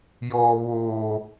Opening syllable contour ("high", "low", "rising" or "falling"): low